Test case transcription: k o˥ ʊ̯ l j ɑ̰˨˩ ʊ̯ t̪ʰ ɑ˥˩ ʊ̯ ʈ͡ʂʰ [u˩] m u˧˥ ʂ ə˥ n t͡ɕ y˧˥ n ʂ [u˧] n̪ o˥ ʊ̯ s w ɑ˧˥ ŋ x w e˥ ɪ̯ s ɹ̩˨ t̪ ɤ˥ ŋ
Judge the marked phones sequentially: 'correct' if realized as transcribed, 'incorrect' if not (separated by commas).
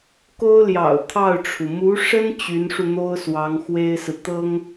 correct, correct